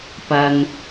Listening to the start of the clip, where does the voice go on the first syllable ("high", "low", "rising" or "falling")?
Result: low